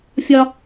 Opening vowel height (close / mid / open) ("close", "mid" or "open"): open